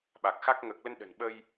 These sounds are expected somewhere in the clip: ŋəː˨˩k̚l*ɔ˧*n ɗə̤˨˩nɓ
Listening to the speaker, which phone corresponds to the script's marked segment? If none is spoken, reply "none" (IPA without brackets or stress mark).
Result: ə˧